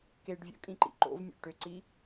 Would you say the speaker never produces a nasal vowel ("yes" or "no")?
no